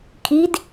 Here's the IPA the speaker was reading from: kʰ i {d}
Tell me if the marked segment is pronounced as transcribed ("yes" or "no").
yes